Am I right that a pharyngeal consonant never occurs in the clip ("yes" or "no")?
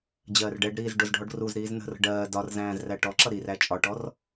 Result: yes